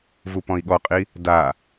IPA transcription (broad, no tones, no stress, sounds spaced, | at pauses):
v u p ɔ̃ i̯ ɠ ɔ qʼ i | d a